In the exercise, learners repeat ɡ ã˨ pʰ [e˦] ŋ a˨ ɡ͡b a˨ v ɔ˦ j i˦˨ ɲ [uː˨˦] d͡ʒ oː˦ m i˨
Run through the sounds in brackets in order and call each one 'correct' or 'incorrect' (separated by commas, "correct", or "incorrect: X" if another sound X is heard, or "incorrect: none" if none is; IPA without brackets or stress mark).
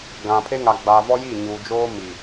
correct, incorrect: uː˨